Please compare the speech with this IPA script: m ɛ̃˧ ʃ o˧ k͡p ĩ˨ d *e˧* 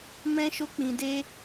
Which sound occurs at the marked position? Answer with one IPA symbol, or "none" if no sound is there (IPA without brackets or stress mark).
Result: e˧